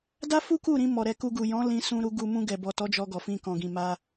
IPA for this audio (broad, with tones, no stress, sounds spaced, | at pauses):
d a˦ f u˦ k u˦˨ ɾ ĩ˧ m ɔ˨ ɾ ɛ˧ k u˧ ɡ u˨ j ɔ̃˨˦ l ĩ˧ s ũ˧ ɾ u˧ ɡ u˧ m ũ˧ ɡ ɛ˨ b ɔ˨ t ɔ˨˦ d͡ʒ ɔ˧ ɡ ɔ˨ f ĩ˧ k ɔ̃˨ ɡ ĩ˨ m a˧